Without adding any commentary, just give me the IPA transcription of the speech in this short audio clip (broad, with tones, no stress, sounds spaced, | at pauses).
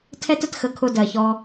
tʰ ɛ˦ t ə˧ t x ə˧ kʰ ʊ˧ d ɜ˨ ç ɔ˧